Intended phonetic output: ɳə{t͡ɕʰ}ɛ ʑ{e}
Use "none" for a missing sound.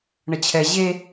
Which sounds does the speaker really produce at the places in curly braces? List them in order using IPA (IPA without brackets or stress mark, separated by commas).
t͡ɕʰ, e